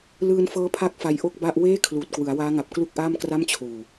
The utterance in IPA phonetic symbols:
lɯː˧nfɤː˦˥ pʰa˥˩k̚fa˧jʔo˥˩k̚ ba˥˩ʔ weː˥˩ kʰluː˨˩t̚kwɯ˩˦a̯waː˦˥ŋa˨˩p̚ klu˥˩k̚ʔaː˥˩mkra˥˩m t͡ɕʰuː˨˩

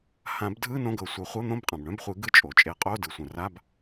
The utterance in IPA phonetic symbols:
hã˨˩˦bdʱɯ˧˥˧ nõ˧˥˧ɡɤ˨˩˦sʷœ˨˩˦ χʷɤ˧˥˧n̪õ˧˥˧bqʼã˩b ɳœ̃˧˥˧bχʷɨ˨˩˦ɡɯ˧˥˧ t͡ʃʼo˩t͡ʃʼe˨˩˦ qʼo˧˥˧ dɯ˩sʷœ̃˩ ra˧˥˧b

